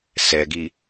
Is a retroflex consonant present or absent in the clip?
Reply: absent